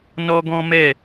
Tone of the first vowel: high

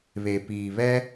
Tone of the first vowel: low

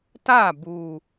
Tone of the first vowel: falling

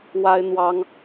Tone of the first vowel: high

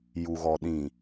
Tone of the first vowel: low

